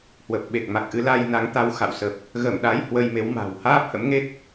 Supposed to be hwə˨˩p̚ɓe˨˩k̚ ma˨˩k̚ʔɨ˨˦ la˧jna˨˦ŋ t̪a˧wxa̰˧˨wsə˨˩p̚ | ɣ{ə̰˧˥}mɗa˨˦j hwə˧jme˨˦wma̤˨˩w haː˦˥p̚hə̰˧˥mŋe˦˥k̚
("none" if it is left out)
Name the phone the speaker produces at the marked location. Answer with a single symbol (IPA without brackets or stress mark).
ə˧˩